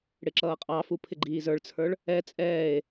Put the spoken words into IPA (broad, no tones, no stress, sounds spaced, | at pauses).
ɽ ɪ ǁ ʌː qʼ ɑ f u pʰ ɪ ɡ͡ǃ iː z ə˞ ɭ t͡sʰ ə˞ ɭ | ɛ t͡sʼ ɛː e̯